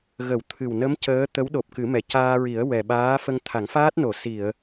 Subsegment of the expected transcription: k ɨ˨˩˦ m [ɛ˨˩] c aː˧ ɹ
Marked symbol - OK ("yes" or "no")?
yes